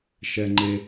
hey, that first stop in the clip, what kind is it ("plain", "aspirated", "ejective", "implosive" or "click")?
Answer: click